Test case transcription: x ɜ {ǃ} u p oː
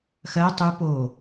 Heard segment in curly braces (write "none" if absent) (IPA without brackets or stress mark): tˤ